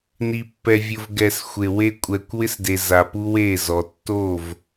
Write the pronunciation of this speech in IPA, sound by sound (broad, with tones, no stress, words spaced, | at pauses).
ni˨pːɛ˨vʲʊ˨v ɡɛ˨s xʷe˨we˦ kʷʼɛ˨kʷ wɪ˦sde˨ za˨pu˦we˦˨ zɔ˨ tːo˦˨v